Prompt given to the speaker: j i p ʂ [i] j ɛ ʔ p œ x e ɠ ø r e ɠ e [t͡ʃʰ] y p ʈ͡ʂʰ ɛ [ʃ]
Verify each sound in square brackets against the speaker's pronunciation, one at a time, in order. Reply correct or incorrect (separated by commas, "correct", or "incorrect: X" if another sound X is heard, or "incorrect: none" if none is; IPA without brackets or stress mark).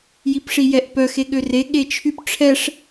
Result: correct, correct, incorrect: ʂ